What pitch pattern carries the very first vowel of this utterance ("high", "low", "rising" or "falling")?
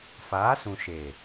rising